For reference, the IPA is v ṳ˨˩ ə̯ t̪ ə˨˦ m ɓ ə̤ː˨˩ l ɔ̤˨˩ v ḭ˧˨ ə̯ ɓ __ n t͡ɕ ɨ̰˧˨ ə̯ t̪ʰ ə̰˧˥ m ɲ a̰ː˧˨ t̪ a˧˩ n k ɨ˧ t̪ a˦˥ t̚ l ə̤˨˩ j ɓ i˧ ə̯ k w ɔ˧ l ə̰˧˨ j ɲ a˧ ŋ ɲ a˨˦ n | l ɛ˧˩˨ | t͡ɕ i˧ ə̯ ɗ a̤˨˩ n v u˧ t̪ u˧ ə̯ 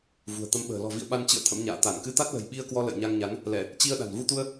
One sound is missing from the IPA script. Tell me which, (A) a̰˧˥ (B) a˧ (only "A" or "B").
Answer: B